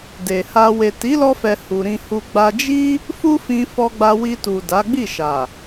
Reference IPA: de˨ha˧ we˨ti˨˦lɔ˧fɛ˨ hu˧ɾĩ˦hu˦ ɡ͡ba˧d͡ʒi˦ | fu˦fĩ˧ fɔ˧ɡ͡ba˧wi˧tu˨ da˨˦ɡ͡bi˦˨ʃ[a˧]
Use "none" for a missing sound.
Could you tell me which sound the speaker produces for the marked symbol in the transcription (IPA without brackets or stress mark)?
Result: a˨